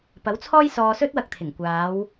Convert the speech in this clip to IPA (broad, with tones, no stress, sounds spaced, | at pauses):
p ɐ˨˥ w t͡sʰ ɔː˥ j s ɔː˧ s ɵ˥ t̚ w ɐ˧ k̚ t̪ʰ ɪ˨˩ ŋ kʷ aː˨˧ w